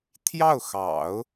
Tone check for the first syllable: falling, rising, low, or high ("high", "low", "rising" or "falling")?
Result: falling